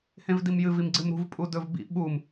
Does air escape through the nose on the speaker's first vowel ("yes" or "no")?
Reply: yes